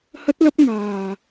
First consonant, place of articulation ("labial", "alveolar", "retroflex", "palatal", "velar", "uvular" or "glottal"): glottal